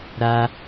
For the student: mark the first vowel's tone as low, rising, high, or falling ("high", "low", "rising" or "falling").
high